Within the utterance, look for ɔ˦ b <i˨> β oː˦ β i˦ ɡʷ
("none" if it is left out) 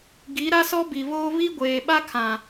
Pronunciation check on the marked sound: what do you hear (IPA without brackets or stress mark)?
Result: i˨